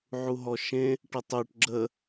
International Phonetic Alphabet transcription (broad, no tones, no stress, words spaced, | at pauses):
ʕuɦɔʃẽ | ʈətˤœʈ ɡ͡ǁə